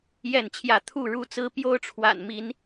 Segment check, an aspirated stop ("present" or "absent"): present